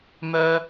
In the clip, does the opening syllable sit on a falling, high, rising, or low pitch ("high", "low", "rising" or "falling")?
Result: high